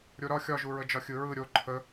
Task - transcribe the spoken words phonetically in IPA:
ɾʲ o ɾ ɒ xʲ ɒ ʒ u ɹ ə d͡ʒ ɒ xʲ ɯ ɹ ɯ ɾʲ o ǃʰ ə

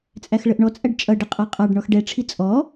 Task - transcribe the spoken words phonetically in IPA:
t͡sʼ æ x ɭ ə ʔ ɳ ɔ t͡sʼ æ ɖ t͡ʃʼ ʌ ɖ ə qʼ ɑ qʼ ɑ ɖ ɳ ɔ x ɖ ɛ ʈ͡ʂʰ i t͡sʼ ɔ

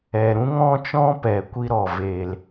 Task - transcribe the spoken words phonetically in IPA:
ɛ˨ ɾ ũ˦ ŋ ɔ̃˦ t͡ʃ ɔ̃˦ p ɛ˨ kʷ i˦ ɾ ɔ˨ v e˨ l

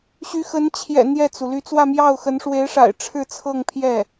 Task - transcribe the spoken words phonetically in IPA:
ɕ y˧˥ x ə˧˥ n t͡ɕʰ j ɛ̰˨˩ n̪ j ɛ˥˩ t͡s u˩ l y˥˧ t͡s w ä˥˧ m j ɑ˥˩ ʊ̯ x ə˧˥ n ʂ w e˧˥ ɪ̯ ʂ a̰˨˩ ɪ̯ ʈ͡ʂʰ ɻ̩˥˧ t͡sʰ ɤ˥˧ ŋ pʰ j ɛ˥˩

